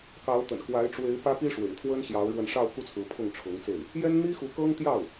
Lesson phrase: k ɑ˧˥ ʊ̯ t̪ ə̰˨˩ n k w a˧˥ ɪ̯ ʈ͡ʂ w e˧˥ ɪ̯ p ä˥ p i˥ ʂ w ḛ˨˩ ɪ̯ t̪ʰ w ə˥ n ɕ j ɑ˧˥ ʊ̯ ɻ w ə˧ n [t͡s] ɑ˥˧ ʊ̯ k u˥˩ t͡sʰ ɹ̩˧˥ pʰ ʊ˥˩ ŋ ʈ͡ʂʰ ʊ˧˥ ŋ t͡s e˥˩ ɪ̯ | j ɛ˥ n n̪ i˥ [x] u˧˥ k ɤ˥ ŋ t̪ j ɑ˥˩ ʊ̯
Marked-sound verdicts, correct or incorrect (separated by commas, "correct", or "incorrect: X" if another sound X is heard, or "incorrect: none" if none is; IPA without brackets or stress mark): incorrect: ʂ, correct